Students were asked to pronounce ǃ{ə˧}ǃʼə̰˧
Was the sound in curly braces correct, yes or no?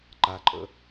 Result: no